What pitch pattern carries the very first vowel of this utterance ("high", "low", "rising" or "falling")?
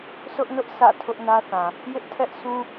high